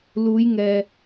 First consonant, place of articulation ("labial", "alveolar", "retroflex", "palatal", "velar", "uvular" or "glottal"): alveolar